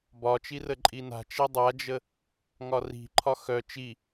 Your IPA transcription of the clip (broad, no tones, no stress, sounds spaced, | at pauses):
b ɒ t͡ʃ i r ə ǃʼ i n a̤ t͡ʃ e dˤ a d͡ʒ ə | ŋ ɒ r i̤ ǃʰ ɒ x œ t͡ʃ i